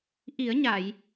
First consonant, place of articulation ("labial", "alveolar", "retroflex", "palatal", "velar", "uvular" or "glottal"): glottal